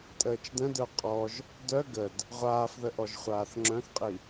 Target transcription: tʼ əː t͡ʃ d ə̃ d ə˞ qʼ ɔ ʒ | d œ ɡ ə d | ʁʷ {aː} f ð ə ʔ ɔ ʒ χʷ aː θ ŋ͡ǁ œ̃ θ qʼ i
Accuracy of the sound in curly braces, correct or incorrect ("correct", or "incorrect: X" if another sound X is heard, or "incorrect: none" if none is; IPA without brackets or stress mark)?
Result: correct